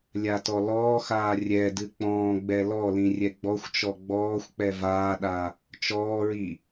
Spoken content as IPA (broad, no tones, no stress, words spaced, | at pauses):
lʲatɔlɔːxaː rʲɛdɨ k͡pɔ̃ːɡ͡bɛ lɔlĩ rʲɛɡ͡bɔxʷt͡ʃɔ ɡ͡bɔːxʷ k͡pɛvaːɗa | t͡ʃɔːɹi